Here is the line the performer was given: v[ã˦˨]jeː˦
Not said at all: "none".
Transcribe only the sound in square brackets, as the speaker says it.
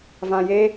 ã˨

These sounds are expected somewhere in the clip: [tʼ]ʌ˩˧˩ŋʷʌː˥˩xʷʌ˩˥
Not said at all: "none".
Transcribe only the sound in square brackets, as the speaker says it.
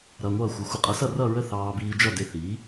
ɾ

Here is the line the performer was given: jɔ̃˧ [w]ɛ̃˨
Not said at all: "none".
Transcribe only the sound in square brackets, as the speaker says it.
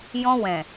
w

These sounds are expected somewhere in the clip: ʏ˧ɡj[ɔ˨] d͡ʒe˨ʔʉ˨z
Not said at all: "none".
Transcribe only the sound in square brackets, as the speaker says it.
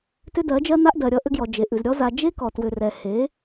ɔ˨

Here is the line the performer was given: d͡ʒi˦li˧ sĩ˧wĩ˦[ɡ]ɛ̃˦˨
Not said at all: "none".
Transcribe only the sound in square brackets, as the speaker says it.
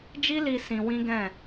ɡ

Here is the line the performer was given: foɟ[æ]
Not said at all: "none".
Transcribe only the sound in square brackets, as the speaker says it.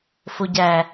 æ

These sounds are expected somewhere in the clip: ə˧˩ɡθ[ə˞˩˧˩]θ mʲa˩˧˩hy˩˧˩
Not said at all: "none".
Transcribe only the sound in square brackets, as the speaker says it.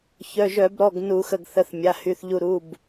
ə˩˧˩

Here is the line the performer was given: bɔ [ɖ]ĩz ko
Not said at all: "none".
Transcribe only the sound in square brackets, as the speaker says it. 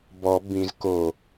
b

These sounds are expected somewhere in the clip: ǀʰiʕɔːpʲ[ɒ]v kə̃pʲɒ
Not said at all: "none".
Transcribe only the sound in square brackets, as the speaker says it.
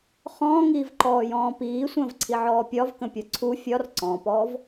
ɒ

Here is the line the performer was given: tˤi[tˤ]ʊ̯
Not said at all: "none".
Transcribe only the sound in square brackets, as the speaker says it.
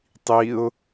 none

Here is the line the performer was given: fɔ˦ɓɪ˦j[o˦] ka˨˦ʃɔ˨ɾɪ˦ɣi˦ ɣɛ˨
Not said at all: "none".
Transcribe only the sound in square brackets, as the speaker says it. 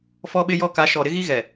ɔ˦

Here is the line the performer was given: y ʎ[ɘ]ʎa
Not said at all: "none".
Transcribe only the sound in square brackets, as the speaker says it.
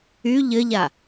ɘ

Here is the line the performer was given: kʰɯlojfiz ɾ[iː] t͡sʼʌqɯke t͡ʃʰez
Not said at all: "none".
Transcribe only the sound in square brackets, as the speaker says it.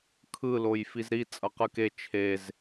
i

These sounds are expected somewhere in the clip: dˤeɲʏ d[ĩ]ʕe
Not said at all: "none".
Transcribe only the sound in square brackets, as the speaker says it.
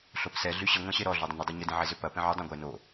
ĩ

